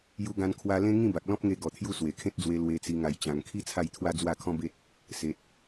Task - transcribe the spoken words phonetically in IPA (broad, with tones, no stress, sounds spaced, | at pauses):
j u˧ ɡ ã˧ n kʰ w a˧ l ẽ˦ ŋ ĩ˥˧ b a˨ k̚ l ɔ̃˦ p̚ ŋ e˧ ɡ ɔ˨˩ t̪ʰ j u˧ s w e˨˩ kʰ ẽ˦ t̚ d͡z w e˧ l w e˧ t͡s i˧ ŋ a˧ j t͡ɕ ã˧ ŋ kʰ i˦ t͡sʰ a˥˧ j t̪ʰ w a˦ d͡z w a˥˧ kʰ ɔ̃˦ b e˦ t̚ | s e˨ t̚